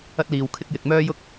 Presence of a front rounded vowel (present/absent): present